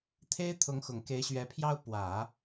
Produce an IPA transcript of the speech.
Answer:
t̪ʰe˥ɪ̯t̪ʰʊ˧˥ŋxʊ˨˩ŋ ke˧˥ɪ̯ ɕɥɛ˧˥pʰjɑ˥ʊ̯ pwä˨˩˦

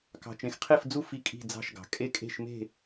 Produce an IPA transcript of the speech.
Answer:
kɑ̤˨t͡ʃẽ˨xqʰe˥˧fd͡zu˥˧ fi˥˧kʼi̤˥˧d͡zɑ̤˥˧ʃɡɑ̤˨ kʼe˥˧kʼe̤˥˧ʃ me̤˥˧

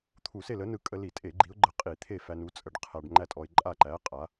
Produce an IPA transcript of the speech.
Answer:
t̪ʰu˧˩˧se˥˨lə˨˥nɯ˧ kʼə˧li˧˩˧tʼe˧˩˧ ɡ͡ǃi˨˥ʊ̯ɡ͡ǃə˧˩˧ qʼi˧˩˧ t̪ʰe˥˨fæ˧nu˨˥t͡sʼə˧ɖ qʰæ˧ɖ ŋ͡ǃæ˥˨tʼɔ˧ɪ̯ǃʼa˥˨ ǃæ˨˥qʼa˨˥

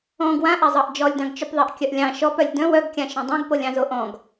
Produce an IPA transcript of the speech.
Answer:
ɔ̃ ɡwãʔazˤɑʔ d͡ʒɔlʲdɑ̃ɡt͡ʃɵpðˤaʔ kʲœʔlʲɑ̃ ʃɔpœlʲ dœ̃w œɡkʲã ʃœ̃dˤõɡpolʲ ɑ̃zoʔɔ̃ɡ

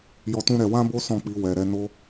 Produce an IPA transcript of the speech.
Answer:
jɔ˦ tũ˦ɾɛ˧ wã˦bo˦ sɔ̃˦˨k͡pi˧ wɛ˨ɾɛ˨˦ no˦

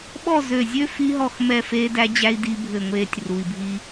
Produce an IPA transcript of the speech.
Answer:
ɓɔ˦˨ zø˦˨ zʲø˦ fi˦ɦɔ˦˨x mɛ˦˨feː˦dæ˦d͡ʑæ˦i̯ di˦bʱɘ˦˨ŋʷeː˦tʲ ru˨i̯bʱi˦

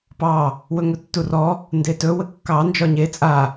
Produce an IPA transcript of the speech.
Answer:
pɑ | wɵŋɵtːurɔ | ndetɵ wəkːɑ nd͡ʒɒɲe t͡sʼa

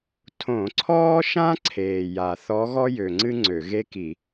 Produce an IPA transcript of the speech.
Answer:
tʰõ˧˩˧ǀʰɔː˥ʃã˥ ǀʰeː˨˩ja˨˩θɔ˧˥ ɣɔ˥jø˨˩ŋ͡ǀɨ˥ ŋ͡ǀø˧˩˧ ɣe˥ki˧˩˧

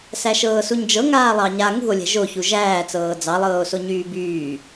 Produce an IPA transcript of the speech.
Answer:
sæʃɤːsuɲd͡ʒɤ ŋaːlˠɑɲa ŋṳo̯ lʲɛ̤ʒo çuʒæːt͡sɤː d͡zɑlˠɤːo̯so ɲyːbyː

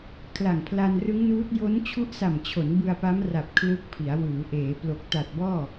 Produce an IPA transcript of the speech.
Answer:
kʰla˨˩ŋpʰla˧nrɯ˦˥ŋnuː˦˥t̚ jo˦˥nt͡ɕʰu˦˥ʔsa˨˩mt͡ɕʰo˩˦n bɯ˧a̯pa˦˥m ra˨˩p̚ kʰlɯ˦˥k̚pʰi˩˦a̯ wɯː˩˦ʔeː˩˦plo˨˩k̚ ta˨˩t̚bɔː˥˩

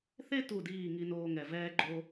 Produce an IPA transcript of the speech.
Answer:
θe˧tu˨˩diː˨˩ ŋi˧noː˧ŋɛ˨˩ vɛː˧ɡ͡ǃo˧

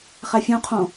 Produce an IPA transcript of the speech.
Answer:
χæfʲõqʰõ

